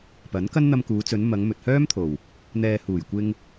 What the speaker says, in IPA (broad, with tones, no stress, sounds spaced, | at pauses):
p ɐ˨˥ n k ɐ˥ n n̪ ɐ˧ m k uː˨˧ t͡s ɵ˨˧ n m ɐ˨˧ ŋ m ɵ˨ t̚ h œː˥ m t̪ʰ o˨˩ w | n̪ ɛː˨ h uː˨˩ j kʷ ɪ˧ ŋ